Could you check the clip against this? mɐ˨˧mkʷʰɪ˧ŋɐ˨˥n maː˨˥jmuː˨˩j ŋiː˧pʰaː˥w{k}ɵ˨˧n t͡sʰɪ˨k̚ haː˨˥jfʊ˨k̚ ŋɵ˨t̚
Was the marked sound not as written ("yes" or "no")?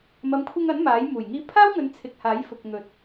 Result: yes